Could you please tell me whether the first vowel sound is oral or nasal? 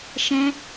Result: nasal